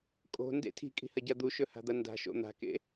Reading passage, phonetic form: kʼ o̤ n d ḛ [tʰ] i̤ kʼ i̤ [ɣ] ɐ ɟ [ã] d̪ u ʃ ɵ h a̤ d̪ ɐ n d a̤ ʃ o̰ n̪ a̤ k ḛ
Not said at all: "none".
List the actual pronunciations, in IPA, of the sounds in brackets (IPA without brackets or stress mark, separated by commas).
tʰ, h, a